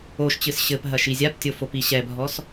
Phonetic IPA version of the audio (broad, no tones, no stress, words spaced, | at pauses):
oʃt͡ɕɨs ɕɘpɦɐ ʃizʲaptʲo fopiɕɛbʱɔs